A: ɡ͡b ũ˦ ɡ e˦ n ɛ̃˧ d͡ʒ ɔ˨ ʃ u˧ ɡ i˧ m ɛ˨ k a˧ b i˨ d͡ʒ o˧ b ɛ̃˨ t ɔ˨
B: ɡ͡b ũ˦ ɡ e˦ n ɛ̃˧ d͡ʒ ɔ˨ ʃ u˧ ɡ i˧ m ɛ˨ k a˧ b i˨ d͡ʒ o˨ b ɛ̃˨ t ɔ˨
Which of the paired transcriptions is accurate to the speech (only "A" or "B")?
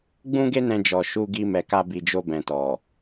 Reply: A